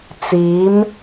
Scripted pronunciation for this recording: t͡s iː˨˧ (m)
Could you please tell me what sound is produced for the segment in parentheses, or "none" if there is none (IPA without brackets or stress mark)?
m